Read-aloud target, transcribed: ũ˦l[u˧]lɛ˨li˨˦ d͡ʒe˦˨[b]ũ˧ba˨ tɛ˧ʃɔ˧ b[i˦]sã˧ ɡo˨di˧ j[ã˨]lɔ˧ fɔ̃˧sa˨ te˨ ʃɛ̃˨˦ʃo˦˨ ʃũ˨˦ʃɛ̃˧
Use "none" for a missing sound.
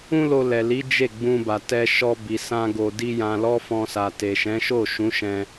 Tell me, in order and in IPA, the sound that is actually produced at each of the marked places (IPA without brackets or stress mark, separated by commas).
o˧, ɡ͡b, i˨, ã˨